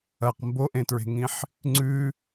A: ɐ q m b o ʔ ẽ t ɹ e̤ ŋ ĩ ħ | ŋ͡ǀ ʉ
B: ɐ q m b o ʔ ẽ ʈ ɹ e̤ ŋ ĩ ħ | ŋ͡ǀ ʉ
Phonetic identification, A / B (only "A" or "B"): A